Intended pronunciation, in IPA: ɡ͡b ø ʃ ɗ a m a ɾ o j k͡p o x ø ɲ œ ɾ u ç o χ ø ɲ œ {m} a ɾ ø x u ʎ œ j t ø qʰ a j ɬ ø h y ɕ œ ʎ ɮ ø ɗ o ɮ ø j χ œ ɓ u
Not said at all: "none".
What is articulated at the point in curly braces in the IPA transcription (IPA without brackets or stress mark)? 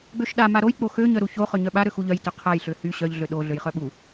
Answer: ɓ